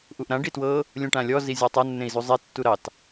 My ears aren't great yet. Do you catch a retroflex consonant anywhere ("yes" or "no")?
yes